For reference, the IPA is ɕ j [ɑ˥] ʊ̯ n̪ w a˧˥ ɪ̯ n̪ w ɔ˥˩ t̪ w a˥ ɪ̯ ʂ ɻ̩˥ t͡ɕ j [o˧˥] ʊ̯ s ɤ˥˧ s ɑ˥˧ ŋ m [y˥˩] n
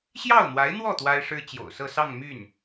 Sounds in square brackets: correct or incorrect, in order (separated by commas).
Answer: incorrect, incorrect, correct